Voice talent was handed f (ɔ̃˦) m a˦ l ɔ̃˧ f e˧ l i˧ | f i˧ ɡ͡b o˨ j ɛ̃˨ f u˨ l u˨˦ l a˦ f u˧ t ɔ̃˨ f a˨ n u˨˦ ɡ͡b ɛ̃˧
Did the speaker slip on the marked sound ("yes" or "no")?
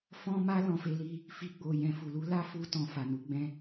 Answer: no